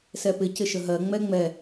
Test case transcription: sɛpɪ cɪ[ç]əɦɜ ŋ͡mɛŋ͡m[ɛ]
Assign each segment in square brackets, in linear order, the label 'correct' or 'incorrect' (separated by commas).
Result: incorrect, correct